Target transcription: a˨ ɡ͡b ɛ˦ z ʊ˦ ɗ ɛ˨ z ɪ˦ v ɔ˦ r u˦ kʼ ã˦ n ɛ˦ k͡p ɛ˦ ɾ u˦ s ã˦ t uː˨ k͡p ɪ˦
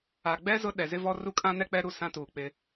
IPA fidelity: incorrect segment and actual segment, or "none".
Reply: none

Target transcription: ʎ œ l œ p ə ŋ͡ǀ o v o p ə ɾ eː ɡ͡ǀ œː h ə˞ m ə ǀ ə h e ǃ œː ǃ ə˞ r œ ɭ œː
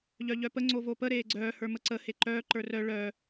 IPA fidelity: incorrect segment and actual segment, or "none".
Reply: l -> ʎ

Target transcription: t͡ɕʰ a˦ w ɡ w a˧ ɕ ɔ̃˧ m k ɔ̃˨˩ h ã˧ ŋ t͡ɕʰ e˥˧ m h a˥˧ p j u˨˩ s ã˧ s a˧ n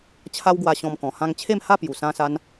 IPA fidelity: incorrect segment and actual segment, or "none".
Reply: none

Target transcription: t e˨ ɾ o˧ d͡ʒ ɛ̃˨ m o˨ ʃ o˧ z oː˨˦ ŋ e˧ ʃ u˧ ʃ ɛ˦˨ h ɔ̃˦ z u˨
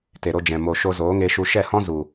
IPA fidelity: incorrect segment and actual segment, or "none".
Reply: none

